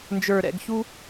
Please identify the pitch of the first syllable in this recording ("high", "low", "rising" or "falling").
low